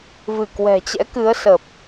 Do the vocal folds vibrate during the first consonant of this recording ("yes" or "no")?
yes